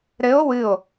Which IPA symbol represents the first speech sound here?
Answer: ɾ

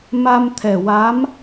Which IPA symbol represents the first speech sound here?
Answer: m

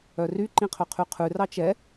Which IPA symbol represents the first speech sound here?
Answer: œ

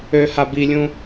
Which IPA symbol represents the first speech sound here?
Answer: ø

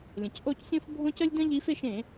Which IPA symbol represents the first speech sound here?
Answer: lʲ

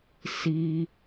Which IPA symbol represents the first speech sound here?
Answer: s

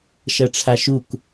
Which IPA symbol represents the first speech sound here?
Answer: ʃ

